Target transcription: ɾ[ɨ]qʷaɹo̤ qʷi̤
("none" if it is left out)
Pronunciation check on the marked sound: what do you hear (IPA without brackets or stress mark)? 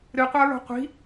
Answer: ɨ